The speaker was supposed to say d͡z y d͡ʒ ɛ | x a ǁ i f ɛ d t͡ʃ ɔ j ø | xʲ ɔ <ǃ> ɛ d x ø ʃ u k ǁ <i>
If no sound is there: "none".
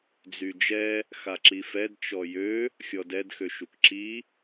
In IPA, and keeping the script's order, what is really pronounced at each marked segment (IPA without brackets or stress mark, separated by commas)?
d, i